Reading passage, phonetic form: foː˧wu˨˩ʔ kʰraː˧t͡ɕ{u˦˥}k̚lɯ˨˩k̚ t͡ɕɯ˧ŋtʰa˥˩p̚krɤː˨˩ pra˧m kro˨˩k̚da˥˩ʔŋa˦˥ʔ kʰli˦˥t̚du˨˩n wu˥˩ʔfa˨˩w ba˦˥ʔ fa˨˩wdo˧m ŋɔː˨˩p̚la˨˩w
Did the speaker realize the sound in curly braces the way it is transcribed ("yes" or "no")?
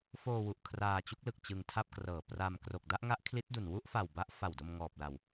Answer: yes